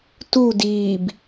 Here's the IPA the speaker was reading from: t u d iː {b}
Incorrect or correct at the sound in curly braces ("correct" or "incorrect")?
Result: correct